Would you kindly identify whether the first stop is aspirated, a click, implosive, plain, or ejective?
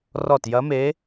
plain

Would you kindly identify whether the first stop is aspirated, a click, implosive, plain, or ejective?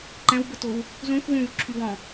click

